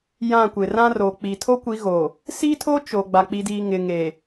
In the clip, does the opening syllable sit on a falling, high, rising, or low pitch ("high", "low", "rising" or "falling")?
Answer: falling